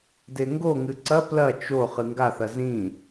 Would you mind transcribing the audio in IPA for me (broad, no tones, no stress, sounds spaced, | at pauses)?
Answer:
d e ŋ ɡ o ŋ ɨ ǀ ɐ p l ɐ t͡ʃ o χ ɨ ŋ ɡ a θ ɐ z ĩ